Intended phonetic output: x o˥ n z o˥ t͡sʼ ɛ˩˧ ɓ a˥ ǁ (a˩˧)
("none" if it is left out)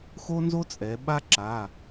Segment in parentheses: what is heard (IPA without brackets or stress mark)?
a˩˧˩